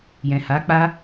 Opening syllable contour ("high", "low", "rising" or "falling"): low